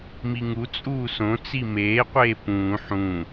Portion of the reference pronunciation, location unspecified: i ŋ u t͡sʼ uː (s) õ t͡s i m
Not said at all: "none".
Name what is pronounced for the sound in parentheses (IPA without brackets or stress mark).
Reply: s